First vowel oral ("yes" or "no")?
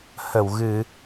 yes